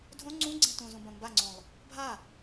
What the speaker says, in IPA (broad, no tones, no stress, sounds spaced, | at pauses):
dʱ õ ŋ͡ǀ ũ ɡ͡ǀ ẽ t ũ z ũ b ɐ̃ m b a ŋ͡ǀ õ lˠ | bʱ a